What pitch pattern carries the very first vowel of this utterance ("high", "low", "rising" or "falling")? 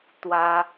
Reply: high